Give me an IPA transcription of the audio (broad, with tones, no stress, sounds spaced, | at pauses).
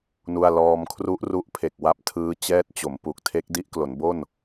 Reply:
n u˥˩ a̯ l ɔː˧ m kʰ r u˦˥ ʔ r u˦˥ ʔ pʰ e˨˩ k̚ w a˦˥ p̚ tʰ ɯː˦˥ t͡ɕ ɛː˦˥ t̚ t͡ɕ o˩˦ m p u˨˩ k̚ tʰ e˦˥ k̚ d i˦˥ ʔ k l o˩˦ n b o˥˩ n